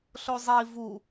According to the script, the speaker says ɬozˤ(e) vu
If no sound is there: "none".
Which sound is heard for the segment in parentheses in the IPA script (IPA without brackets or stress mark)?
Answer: i